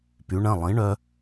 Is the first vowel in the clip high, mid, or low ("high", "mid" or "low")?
high